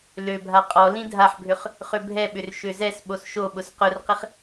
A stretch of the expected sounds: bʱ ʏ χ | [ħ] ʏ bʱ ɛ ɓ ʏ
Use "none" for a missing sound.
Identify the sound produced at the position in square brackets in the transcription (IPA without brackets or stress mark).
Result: χ